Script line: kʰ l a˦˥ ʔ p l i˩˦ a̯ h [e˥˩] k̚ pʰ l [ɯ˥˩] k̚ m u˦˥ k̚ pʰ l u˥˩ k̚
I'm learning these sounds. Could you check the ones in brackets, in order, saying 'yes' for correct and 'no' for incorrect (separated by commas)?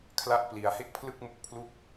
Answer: yes, yes